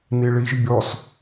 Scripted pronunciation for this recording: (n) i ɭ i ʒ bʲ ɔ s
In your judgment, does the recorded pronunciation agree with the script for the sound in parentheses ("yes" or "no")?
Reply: yes